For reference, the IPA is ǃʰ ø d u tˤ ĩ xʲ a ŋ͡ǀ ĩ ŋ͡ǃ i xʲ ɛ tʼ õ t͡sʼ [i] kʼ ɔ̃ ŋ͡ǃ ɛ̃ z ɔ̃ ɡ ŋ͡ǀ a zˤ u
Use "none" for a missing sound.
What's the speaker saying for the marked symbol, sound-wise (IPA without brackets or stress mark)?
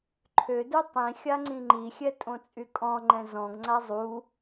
y